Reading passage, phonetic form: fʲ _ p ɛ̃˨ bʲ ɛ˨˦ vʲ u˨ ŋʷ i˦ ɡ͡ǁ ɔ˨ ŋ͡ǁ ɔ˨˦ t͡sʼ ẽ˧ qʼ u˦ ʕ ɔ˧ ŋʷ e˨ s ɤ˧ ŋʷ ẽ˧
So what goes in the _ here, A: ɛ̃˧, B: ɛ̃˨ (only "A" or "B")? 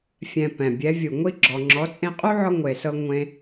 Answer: B